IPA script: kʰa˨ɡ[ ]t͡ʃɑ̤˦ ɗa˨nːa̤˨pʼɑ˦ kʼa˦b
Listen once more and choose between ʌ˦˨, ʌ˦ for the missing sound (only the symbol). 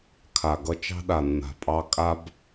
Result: ʌ˦